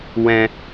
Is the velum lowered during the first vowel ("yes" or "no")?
yes